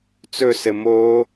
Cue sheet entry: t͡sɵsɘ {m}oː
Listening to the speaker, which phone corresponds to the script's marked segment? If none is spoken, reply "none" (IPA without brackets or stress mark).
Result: m